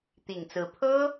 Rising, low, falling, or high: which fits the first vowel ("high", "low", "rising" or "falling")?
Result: low